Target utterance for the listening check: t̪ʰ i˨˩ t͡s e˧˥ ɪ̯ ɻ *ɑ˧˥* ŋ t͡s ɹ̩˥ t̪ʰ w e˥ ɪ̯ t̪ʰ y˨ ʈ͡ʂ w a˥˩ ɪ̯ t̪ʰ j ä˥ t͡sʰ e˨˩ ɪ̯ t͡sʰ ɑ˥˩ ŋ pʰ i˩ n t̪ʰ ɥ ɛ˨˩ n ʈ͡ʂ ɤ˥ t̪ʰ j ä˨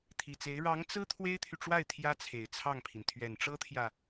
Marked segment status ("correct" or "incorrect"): correct